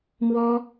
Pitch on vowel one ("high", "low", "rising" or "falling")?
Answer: high